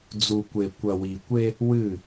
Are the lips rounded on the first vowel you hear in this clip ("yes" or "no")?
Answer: yes